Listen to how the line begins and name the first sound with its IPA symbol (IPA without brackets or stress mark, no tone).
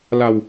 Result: l